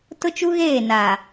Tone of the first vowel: high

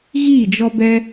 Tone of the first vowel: falling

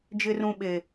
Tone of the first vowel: high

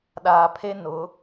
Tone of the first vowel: low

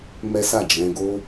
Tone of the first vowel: high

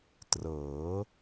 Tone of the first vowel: rising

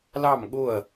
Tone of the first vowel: falling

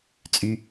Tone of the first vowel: low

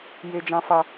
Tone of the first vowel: low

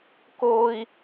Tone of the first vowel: high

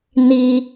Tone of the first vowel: high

